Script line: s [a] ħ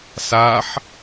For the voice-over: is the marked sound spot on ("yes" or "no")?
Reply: yes